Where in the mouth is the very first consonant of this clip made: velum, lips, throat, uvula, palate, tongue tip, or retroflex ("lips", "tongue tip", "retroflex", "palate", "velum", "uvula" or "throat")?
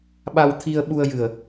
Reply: lips